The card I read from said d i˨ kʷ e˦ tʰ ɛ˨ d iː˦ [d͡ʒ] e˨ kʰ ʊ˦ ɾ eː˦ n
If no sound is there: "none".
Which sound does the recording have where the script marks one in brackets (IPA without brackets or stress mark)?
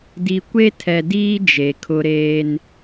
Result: d͡ʒ